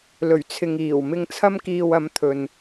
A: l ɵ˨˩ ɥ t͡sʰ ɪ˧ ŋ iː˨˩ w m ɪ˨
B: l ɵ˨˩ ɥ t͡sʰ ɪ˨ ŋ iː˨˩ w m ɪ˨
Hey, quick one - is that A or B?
B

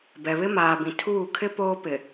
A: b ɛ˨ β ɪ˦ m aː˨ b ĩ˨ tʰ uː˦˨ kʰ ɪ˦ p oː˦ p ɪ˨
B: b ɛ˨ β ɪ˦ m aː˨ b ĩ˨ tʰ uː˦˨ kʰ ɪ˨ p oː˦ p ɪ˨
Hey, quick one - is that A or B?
A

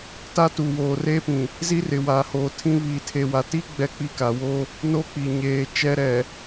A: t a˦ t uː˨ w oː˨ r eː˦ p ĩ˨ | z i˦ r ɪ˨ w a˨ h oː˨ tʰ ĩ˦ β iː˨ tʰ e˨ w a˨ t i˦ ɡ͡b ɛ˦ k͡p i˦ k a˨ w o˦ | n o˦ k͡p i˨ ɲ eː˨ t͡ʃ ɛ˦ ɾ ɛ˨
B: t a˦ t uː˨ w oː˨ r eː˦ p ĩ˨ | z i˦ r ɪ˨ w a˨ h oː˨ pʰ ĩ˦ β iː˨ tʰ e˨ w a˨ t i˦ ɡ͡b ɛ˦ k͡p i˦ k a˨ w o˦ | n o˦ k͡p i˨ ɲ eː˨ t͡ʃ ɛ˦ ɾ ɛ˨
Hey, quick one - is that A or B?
A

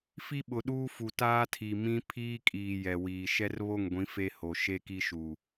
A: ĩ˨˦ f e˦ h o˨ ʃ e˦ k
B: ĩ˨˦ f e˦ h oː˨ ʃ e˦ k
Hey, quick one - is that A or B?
A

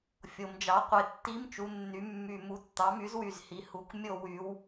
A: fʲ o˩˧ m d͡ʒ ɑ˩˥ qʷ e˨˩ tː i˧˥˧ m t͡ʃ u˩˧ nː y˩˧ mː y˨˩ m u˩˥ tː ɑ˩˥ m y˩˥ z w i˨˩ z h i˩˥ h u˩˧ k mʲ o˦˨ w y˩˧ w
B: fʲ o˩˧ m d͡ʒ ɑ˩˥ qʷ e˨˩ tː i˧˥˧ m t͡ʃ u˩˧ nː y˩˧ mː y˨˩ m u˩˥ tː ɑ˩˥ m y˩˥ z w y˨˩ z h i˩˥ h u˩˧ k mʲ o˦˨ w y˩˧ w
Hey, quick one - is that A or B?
B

